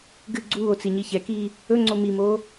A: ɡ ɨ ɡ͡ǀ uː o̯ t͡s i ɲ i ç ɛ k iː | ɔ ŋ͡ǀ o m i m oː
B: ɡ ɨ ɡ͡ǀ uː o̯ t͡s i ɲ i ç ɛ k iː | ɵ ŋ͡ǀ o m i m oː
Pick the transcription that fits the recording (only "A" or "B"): B